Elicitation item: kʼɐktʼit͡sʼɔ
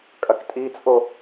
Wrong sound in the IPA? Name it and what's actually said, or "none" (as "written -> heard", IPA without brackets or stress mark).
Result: ɔ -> o